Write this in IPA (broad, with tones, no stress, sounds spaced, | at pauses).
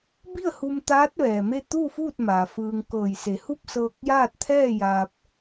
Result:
b i˥˨ ə̯ h u˧ m t̪ aː˧˥ t̚ ʋ ɛː˩ m e˥˨ t̪ uː˥˨ f uː˥˨ t̚ m aː˩ f ɯː˧ ŋ k ɤː˧˩ j s e˩˧ h u˥˨ p̚ s ɤː˧ k̚ j aː˥˨ t̚ t̪ʰ ɛː˥˨ j aː˧ p̚